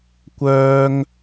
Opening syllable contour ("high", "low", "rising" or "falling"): high